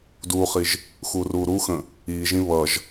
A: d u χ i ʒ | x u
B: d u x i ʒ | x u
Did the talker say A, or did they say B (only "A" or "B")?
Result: A